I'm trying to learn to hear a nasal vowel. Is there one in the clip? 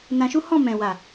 yes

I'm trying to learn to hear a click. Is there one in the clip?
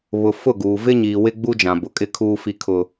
no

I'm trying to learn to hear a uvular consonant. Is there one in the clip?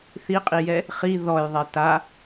yes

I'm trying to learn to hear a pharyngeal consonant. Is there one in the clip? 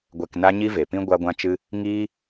no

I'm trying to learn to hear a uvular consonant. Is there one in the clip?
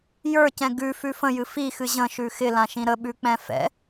no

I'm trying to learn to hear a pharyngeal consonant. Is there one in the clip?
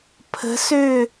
no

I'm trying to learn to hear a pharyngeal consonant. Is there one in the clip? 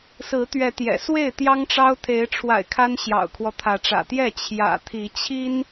no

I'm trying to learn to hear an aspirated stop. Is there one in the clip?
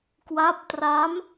no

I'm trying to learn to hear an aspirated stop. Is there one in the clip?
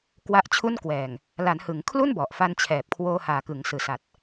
yes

